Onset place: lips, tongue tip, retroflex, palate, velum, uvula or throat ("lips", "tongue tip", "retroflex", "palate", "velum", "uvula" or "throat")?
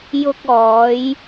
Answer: palate